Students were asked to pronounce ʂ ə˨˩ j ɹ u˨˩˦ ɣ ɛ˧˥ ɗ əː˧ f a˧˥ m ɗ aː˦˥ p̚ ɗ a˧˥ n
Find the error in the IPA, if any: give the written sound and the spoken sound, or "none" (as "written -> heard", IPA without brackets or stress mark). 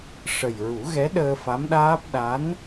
none